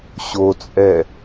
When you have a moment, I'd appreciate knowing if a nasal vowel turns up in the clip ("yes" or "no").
no